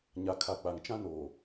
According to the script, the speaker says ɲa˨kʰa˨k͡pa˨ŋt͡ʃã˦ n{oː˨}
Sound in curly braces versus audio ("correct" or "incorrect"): correct